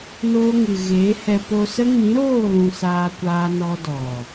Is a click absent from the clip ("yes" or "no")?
yes